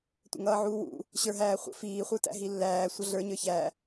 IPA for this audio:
tʷə̰ŋʌːʕuːwṵ | ɕə˞ɦæːχʷə̰ fiːχʷə˞tæ̰ ɦilːæː sʷʌɮə˞ɲə˞ çæ

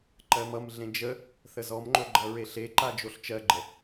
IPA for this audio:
ǃɜmʌmɮẽ d͡ʒə | θəzɔmŋ͡ǃo ɡ͡ǃʌɹeɬeǃa d͡ʒoɬt͡ʃɜɡ͡ǃə

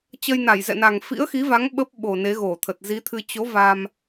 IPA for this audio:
t͡ɕə˧jna˧˩jzɛ̰˧˨na˨˩ŋ fḭ˧˥ə̯xi˨˦va˨˦ŋ ɓə˦˥p̚ɓo˨˩ ne˨˦ɣo˧˩t̪ʰə˨˩t̚ zi˨˦t̪ʰɨ˧ t͡ɕo˨˦ va˧m

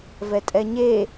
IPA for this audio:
vɛtʼɛɲe

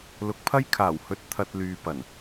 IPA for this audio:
lʊ˨˥k̚pʰɐ˥jkʰaː˨˩whɵ˧t̚ t̪ʰɐ˧t̚lyː˨ pɐ˨˩n

